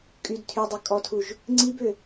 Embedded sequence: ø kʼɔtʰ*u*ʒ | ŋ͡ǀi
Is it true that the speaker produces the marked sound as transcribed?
yes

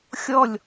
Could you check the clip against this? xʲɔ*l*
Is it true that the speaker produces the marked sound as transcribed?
no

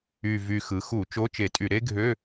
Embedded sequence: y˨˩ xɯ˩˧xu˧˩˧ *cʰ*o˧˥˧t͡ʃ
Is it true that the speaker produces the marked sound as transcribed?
no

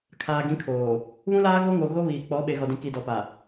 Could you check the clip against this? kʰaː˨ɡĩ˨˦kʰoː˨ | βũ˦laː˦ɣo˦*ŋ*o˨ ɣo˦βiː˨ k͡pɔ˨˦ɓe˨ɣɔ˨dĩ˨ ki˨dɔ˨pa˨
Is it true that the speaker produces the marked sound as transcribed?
yes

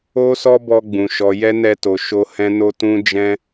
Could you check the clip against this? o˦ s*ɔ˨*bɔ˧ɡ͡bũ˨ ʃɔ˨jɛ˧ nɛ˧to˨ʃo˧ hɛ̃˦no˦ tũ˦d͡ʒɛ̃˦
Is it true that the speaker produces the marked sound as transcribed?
no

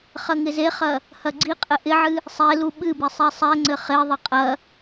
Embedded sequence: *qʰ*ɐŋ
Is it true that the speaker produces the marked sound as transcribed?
no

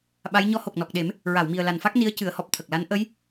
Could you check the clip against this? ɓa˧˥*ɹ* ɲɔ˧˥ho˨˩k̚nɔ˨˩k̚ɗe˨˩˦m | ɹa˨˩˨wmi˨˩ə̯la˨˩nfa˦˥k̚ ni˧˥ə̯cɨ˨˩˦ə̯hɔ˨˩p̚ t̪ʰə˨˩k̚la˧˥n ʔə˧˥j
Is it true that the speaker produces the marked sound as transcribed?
no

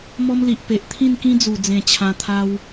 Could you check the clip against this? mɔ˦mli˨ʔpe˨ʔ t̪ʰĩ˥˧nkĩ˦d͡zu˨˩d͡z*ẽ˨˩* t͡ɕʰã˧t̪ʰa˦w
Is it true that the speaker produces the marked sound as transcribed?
yes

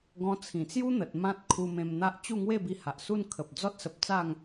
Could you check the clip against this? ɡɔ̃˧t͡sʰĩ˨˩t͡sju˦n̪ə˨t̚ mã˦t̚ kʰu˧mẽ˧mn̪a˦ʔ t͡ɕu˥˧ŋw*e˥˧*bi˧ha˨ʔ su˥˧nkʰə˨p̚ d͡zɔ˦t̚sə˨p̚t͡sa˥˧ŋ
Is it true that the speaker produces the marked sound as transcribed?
yes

